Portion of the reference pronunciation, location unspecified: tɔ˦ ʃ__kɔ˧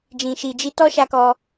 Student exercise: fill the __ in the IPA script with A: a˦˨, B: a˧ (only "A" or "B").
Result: B